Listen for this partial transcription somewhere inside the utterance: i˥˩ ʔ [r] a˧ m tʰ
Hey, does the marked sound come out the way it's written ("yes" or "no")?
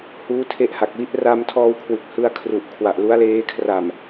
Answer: yes